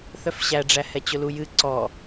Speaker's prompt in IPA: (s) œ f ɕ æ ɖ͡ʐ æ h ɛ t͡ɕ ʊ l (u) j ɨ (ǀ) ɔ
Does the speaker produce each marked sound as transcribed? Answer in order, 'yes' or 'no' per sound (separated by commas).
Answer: no, yes, yes